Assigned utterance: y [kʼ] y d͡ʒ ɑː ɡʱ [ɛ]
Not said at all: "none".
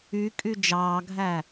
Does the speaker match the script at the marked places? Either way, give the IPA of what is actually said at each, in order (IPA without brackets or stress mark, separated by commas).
kʼ, æ